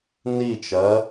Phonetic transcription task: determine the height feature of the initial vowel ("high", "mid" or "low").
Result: high